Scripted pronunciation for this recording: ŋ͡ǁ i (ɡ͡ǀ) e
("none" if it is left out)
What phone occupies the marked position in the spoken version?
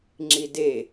d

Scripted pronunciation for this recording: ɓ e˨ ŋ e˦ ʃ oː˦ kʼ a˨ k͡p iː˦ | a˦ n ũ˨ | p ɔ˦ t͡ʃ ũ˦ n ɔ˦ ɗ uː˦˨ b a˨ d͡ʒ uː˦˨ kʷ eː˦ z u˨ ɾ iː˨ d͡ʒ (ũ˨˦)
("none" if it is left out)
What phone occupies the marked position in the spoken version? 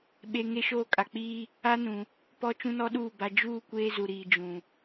ũ˨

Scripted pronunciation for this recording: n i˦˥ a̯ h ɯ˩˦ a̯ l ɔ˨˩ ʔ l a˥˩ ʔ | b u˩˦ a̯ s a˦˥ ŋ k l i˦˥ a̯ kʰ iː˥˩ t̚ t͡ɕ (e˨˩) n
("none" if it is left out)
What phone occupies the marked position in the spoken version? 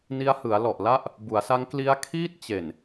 e˨˩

